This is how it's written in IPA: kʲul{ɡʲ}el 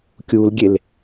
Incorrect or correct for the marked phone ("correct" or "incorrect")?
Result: correct